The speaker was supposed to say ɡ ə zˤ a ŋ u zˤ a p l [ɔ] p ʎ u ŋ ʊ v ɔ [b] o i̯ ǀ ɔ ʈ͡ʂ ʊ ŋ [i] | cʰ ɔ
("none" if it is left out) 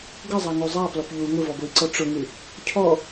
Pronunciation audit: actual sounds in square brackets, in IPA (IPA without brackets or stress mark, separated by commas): ɔ, b, ɨ